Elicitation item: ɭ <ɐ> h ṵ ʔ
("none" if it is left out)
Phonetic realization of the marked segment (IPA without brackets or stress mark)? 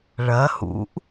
ɐ